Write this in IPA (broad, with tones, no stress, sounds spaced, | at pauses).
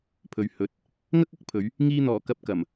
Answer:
pʰ ɵ˨ ɥ h ɵ˨˥ t̚ | ŋ ɐ˥ k̚ ɐ˥ k̚ pʰ ɵ˨˧ ɥ | ŋ iː˧ n̪ ɔː˨˩ k ɐ˨˥ p̚ k ɐ˨˩ m